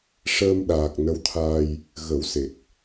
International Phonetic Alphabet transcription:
ʂəː˧mɗaː˨˩k̚ nə˧˥wt̪ʰaː˧j | ɣə˨˩˦wse˨˩k̚

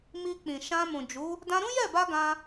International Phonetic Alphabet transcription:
mi˧k͡pĩ˨ ʃã˧mũ˨d͡ʒu˨˦ | dã˧ɾũ˦jɛ˦˨ba˧ ɡã˧

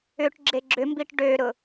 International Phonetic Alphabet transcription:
ʏʈ ɡ͡ǁeɡ͡ǁʏmbiʈ ɖøɾʊ

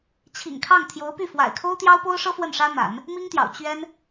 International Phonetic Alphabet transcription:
t͡ɕʰḭ˨˩ŋkʰɑ˥˩ŋ t̪ʰjo˧˥ʊ̯py˥˩ fwa̰˨˩ɪ̯kʰo˥ʊ̯t̪jɑ˥ʊ̯ po˥ʊ̯ʂɤ˥ fwə˥˩nʂä˥n̪a̰˨˩˦n | mi˥ŋt̪jɑ̰˨˩ʊ̯ t͡ɕɥɛ˥n

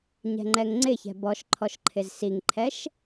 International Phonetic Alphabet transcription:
ɲɛ̤ŋ͡ǃɛŋŋ͡ǀɪçɛ̤ bɔʃǃʰɔʃ ǃʰɪzsiŋǃʰɛʃ

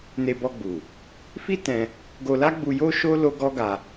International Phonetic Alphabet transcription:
ne˧bɔ˧ɡ͡bu˨ | fi˦ tɛ̃˧ | ɡo˧la˦ɡ͡bu˧ jo˦ʃo˦ lo˦ɡɔ˦ɡa˧

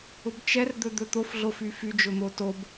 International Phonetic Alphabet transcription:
ʊbt͡ʃɛr d̪ɵd̪ɵt̪of ɮofyfy d͡ʒʊn̪otob

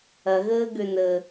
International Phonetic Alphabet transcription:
ɐɣəːɡø nə

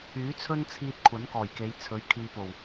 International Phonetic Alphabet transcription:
yː˨˥t͡sʰɵ˥nt͡sʰiː˧t̚ kʷʰɐ˨˥nkɔː˨˩jke˨˧j t͡sʰɵ˨˥ɥ kʰiː˨po˨˩w

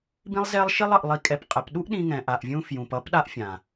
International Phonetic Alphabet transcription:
bĩ˦lˠzɛ˦lˠʃi˦lˠ ʌ˧ʔlˠi˧kʼɛ˧pqʼɛ˨˦p ɗu˦ʔɗĩ˧ ŋɛ̃˨ʔa˨ʔvʲũ˧ fjũ˨pʌ˦p ɗa˦ʔfʲã˨

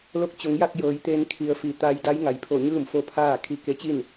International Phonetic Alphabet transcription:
lo˧k̚t͡ɕo˩˧ŋja˥˨k̚ jɤː˩˧jt̪eː˧n kʰi˩˧ə̯fi˩˧ t̪a˧jda˧˥j ŋa˩˧jpʰo˧˩ɲɯː˥˨mfo˧ pʰaː˥˨ kʰi˧ ke˧˥t͡ɕi˥˨n

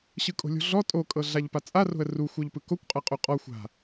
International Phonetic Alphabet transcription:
ɕɯkʼo̤lʲo̤ɮɔ tʼokʼɤ ɮaʎpat͡sʼa ro̤ə̯ruxʷɤʎpɯ kokʷqʼɤqʼu qʼɔ xʷa̤

